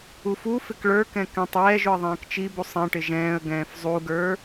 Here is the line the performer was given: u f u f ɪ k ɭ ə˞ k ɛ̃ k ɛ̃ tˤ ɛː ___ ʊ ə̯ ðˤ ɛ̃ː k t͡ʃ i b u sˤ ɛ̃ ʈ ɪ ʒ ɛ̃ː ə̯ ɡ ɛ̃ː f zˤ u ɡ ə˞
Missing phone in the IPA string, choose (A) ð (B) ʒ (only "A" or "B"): B